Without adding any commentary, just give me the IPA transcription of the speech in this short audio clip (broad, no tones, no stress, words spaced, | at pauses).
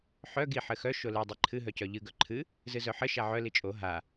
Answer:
ħœ ɡi ħɘxœ ʃolɨ dˤiǃʰɨ ɦœcœʎɨ ɡœǃʰɨ | zɨzœħɘ ʃaʕœ lit͡ʃʼo ɦa